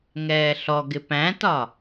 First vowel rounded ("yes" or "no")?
no